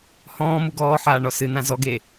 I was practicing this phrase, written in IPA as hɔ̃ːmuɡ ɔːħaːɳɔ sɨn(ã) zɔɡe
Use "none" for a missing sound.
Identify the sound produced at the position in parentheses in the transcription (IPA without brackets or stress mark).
ã